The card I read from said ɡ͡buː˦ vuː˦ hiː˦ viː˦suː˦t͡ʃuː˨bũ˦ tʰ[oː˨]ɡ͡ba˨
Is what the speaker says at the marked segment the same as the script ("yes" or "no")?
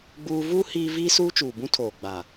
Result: yes